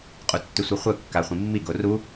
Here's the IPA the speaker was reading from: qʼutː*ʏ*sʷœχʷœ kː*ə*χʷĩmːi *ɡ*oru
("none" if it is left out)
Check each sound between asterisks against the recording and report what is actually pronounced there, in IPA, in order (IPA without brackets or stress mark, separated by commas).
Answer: ʏ, a, ɡ